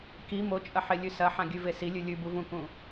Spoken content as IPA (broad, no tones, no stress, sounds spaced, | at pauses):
k i m o t͡ʃʼ ɐ ħ e lʲ ʉ s ɐ ħ ã ɡʲ ʉ v e s i lʲ ʉ lʲ ʉ b u v ũ k ũ